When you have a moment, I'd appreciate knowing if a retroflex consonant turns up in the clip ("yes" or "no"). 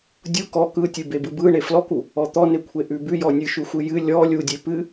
yes